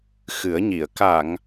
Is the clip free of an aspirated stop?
yes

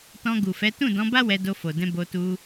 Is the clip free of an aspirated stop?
yes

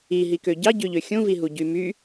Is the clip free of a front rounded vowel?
no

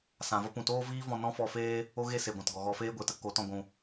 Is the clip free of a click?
yes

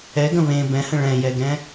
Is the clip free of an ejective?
yes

